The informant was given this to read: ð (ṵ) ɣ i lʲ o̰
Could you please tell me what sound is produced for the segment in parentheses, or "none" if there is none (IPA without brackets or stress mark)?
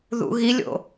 ṵ